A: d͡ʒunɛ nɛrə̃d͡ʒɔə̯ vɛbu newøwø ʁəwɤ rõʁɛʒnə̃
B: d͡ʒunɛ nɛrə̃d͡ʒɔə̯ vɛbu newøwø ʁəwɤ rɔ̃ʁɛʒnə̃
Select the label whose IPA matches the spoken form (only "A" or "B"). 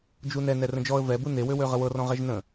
B